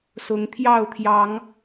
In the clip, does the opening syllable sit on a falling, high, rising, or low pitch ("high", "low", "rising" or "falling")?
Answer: rising